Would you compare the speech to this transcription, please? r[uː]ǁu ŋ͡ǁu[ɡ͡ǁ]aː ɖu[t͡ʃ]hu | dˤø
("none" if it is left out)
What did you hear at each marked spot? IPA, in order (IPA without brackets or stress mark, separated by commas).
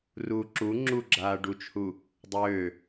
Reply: uː, ɡ͡ǁ, t͡ʃ